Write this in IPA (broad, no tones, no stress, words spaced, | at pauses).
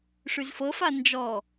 ʂyzfɤfa nd͡ʒɔ